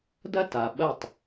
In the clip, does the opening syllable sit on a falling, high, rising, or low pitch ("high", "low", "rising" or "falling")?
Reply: high